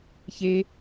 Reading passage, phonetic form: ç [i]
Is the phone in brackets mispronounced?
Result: yes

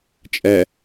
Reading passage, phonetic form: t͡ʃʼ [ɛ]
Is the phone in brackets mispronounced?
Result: no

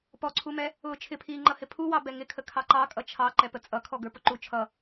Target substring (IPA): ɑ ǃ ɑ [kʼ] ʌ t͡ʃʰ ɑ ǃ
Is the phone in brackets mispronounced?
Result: no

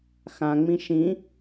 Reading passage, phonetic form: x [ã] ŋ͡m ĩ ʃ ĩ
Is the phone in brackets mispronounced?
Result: no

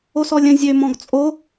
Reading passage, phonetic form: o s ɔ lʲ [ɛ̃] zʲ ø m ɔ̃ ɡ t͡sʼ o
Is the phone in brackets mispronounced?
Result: yes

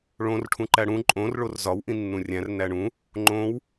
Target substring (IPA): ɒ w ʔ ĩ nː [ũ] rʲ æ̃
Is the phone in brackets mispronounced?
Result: no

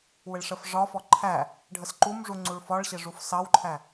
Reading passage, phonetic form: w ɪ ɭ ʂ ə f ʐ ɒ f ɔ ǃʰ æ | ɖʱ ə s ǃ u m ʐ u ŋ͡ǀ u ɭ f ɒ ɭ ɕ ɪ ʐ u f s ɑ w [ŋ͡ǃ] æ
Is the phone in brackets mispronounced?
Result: yes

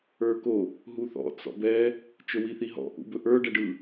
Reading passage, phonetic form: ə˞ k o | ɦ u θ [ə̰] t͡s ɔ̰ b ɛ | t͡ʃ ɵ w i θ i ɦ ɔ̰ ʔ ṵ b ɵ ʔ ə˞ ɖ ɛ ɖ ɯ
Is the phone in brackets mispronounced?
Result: yes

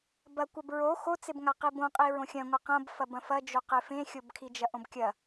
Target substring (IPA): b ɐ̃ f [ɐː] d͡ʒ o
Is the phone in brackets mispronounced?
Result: yes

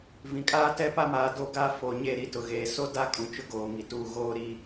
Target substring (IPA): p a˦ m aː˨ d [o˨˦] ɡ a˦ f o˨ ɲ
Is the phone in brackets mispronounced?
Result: yes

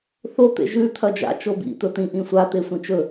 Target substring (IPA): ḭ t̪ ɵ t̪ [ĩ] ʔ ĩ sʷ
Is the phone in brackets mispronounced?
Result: no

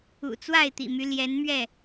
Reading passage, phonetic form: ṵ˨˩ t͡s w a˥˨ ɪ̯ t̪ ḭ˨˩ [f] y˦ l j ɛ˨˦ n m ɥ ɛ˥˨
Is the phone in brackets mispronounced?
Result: yes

